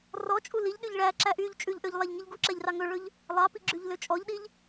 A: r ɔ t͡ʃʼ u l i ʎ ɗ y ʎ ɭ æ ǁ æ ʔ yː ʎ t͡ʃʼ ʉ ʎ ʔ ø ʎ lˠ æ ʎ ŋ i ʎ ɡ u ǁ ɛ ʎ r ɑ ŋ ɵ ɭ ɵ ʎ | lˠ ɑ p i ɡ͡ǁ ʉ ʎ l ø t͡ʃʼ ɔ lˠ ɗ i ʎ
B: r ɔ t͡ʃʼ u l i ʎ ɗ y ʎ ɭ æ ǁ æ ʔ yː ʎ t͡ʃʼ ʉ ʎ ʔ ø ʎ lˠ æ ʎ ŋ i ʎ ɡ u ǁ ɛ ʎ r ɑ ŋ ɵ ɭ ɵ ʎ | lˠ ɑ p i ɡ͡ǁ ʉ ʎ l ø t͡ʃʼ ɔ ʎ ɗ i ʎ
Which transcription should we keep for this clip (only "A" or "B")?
B